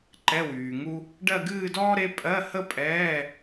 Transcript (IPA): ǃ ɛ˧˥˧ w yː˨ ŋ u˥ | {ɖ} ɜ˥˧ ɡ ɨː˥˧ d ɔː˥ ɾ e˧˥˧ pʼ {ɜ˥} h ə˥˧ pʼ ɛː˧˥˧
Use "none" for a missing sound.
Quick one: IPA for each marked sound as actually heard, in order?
ɖ, ɜ˧˥˧

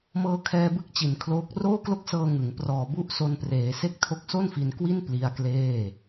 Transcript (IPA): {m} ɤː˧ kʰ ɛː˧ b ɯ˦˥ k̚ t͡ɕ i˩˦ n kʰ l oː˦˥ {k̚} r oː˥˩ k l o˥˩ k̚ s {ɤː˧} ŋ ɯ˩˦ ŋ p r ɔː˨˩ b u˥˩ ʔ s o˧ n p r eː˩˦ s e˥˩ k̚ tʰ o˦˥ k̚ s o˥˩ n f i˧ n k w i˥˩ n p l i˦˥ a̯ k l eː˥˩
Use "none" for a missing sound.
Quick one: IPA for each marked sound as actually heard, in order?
m, k̚, ɤː˧

